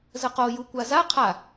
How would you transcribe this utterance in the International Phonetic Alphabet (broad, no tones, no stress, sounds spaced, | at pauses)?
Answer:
z ə q o j u kʷ a z a qʰ a